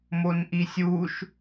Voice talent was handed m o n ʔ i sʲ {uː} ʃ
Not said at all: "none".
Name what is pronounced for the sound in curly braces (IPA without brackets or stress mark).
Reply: uː